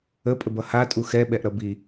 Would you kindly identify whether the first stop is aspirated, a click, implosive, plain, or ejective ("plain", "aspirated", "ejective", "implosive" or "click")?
ejective